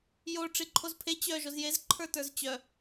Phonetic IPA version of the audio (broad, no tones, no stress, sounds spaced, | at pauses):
j o ʈ͡ʂ i ǃʰ o z pʰ e t͡ɕ œ ʒ o z j e z ǃʰ ə˞ t ə˞ z t͡ɕ œ